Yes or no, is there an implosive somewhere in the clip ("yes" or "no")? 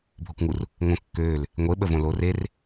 yes